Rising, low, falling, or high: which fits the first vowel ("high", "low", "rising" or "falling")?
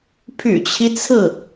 low